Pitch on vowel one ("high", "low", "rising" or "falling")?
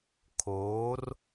rising